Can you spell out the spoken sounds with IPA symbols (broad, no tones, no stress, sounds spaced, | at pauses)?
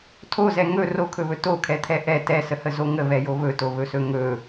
tʰ o z ɛ ŋ ɵ r o kʰ ɵ β ɵ t o kʰ ɛ t̪ʰ ɛ ʔ ɛ t ɛ s ə h ə z o ŋ ə β ɛ j o β ɵ t o β ɵ s ɵ ŋ ɵ